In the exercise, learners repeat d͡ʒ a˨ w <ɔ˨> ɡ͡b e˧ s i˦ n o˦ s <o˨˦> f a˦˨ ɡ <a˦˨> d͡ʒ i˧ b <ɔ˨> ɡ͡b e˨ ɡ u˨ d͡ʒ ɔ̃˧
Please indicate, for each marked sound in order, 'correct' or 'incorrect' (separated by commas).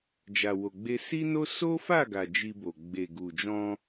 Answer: incorrect, incorrect, incorrect, incorrect